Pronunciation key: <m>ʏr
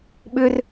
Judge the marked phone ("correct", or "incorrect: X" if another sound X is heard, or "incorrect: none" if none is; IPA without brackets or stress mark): incorrect: ɓ